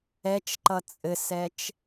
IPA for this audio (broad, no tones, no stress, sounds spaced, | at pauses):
ɛ t͡ʃ ǃ ʌ t͡sʼ ɘ s ɛ t͡ʃ